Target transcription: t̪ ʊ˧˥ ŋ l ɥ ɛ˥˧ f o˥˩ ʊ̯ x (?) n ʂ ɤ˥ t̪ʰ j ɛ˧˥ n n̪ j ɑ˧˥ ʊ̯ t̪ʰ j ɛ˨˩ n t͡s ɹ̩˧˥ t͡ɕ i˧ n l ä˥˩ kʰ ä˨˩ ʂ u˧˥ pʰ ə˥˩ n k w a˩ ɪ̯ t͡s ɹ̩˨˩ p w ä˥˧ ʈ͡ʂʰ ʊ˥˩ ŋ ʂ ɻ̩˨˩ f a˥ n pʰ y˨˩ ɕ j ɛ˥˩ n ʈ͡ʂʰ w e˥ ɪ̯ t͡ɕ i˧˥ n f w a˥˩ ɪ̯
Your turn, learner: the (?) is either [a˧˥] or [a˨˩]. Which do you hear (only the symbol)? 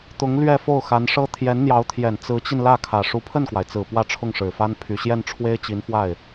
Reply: a˧˥